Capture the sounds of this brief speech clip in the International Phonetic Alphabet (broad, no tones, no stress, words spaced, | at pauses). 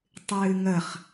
tˤɨːŋəχ